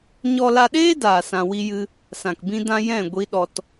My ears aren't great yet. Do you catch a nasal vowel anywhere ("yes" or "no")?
yes